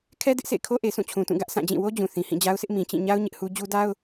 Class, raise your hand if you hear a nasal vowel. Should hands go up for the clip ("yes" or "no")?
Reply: yes